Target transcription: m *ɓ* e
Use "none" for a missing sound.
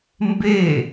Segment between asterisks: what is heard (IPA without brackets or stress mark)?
b